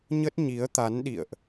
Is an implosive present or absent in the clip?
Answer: present